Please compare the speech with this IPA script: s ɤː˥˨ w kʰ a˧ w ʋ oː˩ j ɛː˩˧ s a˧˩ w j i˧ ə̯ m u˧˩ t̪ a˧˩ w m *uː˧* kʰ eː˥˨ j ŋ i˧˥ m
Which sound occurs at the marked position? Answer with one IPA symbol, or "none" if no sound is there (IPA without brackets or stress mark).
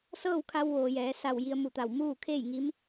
uː˥˨